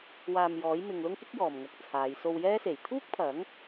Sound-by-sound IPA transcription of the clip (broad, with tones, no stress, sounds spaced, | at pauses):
w aː˨ m j ɔː˨˥ j m ɪ˧ ŋ l ʊ˥ ŋ k ɪ˥ k̚ j ɔː˨ m ŋ ɐ˧ k̚ t͡sʰ aː˨˧ j s o˧ w j ɛː˥ s e˨˩ j t̪ʰ uː˥ k̚ pʰ ɐ˨˥ ŋ